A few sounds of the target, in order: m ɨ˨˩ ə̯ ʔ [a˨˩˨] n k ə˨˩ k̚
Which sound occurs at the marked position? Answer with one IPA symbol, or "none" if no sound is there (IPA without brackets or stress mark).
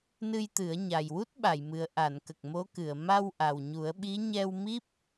a˨˩˨